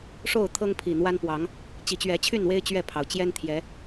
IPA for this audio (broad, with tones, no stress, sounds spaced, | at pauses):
ʂ o˥˨ ʊ̯ t̪ʰ ɤ˦ ŋ pʰ i˨˩ n̪ w a˦ n p w ɑ˨˦ ŋ | t͡ɕ i˨˩ t͡ɕ ɥ ɛ˨˦ t͡ɕʰ y˥˨ n w e˦ ɪ̯ t͡ɕ ɥ ɛ˥˨ pʰ ɑ˩ ʊ̯ t͡ɕ j ɛ˦ n t̪ʰ j ɛ˨˦